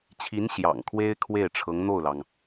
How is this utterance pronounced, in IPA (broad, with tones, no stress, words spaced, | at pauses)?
t͡ɕʰi˧˥n ɕjɑ̰˨˩ŋkʰwe˥ɪ̯ kʰwe˥˩ɪ̯ ʈ͡ʂʰɤ˧˥ŋn̪o˥˩ʊ̯lɑ˩ŋ